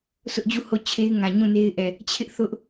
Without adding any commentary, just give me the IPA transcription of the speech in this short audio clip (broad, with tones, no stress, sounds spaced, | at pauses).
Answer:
sʰ ʊ˦ ʔ d͡ʑ u˦˨ h o˦˨ t͡ɕʰ e˦ ɪ̯ ŋ ã˨ ɲ ũ˦˨ n e˦ ɪ̯ ʔ ɛ˨ | t͡ɕʰ ɪ˦ ʔ θ ʊ˦ ʔ